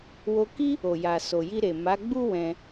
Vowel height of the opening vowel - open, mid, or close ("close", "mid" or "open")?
mid